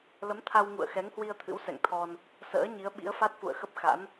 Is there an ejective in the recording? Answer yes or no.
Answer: no